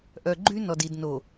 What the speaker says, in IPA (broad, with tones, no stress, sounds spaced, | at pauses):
ʔ œ˨ ɡ͡ǃ y˦ n ɔ˨ d i˨ d n o˨